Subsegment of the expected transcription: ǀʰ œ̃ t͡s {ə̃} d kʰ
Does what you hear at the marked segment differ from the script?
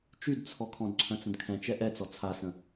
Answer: no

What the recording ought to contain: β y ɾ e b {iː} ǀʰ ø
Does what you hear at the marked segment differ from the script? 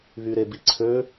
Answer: yes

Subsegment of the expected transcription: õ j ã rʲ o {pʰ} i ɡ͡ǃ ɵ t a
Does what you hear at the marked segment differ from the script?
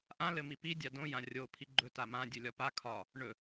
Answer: no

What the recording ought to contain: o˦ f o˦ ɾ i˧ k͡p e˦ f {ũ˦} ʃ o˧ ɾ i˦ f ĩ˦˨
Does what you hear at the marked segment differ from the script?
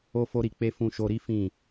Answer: yes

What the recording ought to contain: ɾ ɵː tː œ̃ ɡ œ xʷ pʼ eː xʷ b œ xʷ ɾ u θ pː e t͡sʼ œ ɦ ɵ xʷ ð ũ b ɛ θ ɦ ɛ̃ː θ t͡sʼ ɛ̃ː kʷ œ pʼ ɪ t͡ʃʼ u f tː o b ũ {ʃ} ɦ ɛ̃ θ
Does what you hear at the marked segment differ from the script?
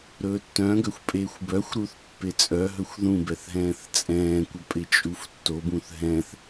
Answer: yes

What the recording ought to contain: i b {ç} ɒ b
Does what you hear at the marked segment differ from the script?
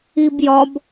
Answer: yes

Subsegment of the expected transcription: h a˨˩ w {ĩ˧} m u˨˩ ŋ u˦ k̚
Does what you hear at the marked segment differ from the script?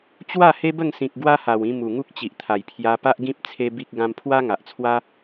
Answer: no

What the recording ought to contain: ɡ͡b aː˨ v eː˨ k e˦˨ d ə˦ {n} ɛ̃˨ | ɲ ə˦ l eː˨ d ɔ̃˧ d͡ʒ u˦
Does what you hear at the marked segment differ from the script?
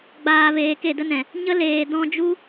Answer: no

